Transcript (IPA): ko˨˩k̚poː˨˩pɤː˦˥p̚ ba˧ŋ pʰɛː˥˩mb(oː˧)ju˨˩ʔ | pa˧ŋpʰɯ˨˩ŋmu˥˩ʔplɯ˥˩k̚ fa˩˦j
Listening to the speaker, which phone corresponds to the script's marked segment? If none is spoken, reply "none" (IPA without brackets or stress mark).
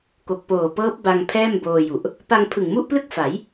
oː˧